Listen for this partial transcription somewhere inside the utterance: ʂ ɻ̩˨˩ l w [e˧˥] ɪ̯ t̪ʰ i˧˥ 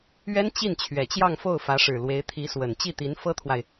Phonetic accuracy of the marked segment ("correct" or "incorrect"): correct